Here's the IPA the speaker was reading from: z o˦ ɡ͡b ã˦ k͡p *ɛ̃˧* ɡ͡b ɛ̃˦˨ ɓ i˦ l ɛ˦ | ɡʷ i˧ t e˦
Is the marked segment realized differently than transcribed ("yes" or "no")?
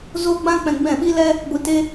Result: no